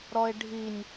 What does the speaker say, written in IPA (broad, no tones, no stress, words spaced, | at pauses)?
ɾɔe̯ɖʱinʲ